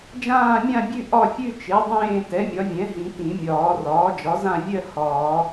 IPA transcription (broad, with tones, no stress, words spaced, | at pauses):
d͡ʒãː˥˧mʲã˥˧bʲʉ˥˧ ʔɒ˥˧fʲʉ˥˧ t͡ʃe˩˥ dˤẽː˥˧ tɛ˩˥mʲɒ˩˥vʲɛ̃˩˥ɦĩ˨˩˦ tĩ˨˩˦mʲɒː˨˩˦ rɒː˩˥d͡ʒɒ˩˥zã˥˧ vʲɜ˥˧ hɒː˨˩˦